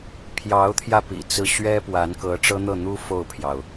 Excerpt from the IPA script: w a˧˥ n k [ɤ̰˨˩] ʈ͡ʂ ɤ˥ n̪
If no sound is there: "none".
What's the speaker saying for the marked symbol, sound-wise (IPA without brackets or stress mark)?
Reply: ɤ˧˥